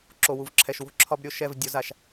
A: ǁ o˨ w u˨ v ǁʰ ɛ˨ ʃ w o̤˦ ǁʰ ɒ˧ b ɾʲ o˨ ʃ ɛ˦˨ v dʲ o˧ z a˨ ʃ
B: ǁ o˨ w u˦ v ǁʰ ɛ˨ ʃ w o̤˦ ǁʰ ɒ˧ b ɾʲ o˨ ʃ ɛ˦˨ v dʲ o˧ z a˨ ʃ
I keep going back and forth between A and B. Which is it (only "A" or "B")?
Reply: A